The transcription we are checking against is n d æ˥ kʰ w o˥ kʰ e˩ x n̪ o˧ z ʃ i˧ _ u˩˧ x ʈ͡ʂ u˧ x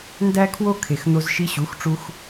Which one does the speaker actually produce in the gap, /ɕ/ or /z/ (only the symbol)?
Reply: ɕ